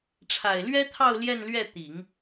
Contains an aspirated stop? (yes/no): yes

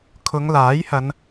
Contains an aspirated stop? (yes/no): yes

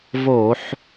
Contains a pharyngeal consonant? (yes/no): yes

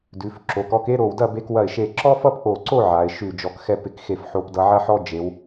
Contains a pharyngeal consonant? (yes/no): yes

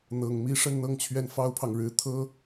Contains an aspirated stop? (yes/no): yes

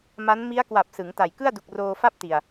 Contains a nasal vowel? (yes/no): no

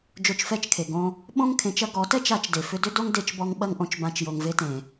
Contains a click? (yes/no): no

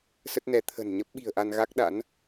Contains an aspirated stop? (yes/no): yes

